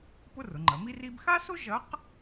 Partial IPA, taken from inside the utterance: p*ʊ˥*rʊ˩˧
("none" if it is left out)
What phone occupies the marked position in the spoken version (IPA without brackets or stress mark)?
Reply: ʊ˥